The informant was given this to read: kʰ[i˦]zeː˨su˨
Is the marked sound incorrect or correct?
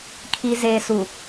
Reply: incorrect